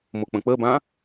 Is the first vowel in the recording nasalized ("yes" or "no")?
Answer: no